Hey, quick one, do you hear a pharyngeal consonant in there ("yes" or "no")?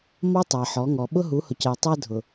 yes